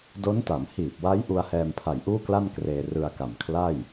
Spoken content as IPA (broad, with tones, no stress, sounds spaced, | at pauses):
d o˦˥ n t a˩˦ m h iː˨˩ p̚ w a˦˥ j ʔ u˧ a̯ h ɛː˧ m pʰ a˨˩ j ʔ uː˥˩ k l a˥˩ n k r eː˧ r ɯ˧ a̯ k a˨˩ m kʰ l a˥˩ j